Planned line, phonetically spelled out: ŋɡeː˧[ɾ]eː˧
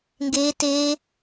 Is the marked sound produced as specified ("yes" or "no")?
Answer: no